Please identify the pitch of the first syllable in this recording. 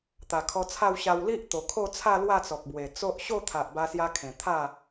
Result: low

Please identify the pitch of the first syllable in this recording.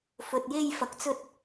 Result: low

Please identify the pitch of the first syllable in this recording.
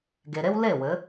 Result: low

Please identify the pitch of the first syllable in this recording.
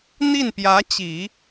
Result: falling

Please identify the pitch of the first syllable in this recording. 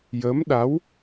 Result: rising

